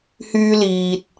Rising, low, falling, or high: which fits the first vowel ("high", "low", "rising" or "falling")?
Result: high